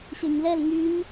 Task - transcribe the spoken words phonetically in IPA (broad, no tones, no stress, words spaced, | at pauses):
ɕɛɲlɛl ŋyɲ